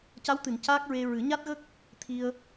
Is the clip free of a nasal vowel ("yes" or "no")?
yes